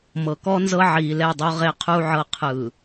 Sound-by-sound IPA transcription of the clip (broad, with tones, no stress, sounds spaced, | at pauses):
m ɤ˨ k ɔ˦ n z ɤ˦ ʕ iː˨ l ɛ˦˨ dˤ o˦ ʁ e˦ qʰ u˦ ʕ ɤ˦ qʰ ɯ˨